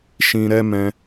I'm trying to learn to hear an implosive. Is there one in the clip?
no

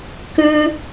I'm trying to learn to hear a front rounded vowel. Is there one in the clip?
yes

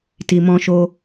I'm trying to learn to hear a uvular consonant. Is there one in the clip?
no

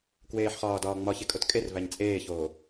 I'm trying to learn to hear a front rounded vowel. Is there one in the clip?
no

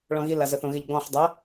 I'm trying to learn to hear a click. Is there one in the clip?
no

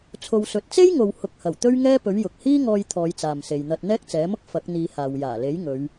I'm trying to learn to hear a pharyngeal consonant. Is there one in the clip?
no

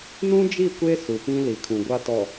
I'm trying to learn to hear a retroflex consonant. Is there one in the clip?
no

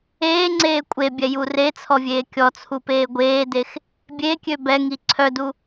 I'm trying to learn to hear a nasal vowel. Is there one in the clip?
no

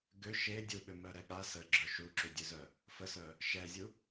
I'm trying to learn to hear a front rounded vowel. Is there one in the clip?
yes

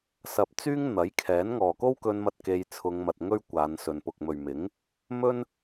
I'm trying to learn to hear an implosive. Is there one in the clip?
no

